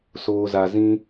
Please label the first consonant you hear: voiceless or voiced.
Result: voiceless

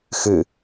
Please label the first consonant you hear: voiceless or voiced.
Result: voiceless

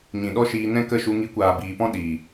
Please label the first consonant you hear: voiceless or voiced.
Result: voiced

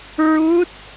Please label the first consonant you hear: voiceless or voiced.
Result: voiced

